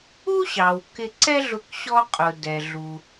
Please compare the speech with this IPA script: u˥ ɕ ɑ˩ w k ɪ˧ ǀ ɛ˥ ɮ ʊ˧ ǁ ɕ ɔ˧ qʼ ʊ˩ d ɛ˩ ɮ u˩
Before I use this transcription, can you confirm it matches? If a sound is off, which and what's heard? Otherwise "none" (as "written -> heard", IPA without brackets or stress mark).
ǁ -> k